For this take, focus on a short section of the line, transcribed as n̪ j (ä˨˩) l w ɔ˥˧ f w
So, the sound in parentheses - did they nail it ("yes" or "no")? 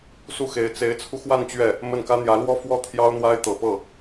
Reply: no